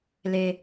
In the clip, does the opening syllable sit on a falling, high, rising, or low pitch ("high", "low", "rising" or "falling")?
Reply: high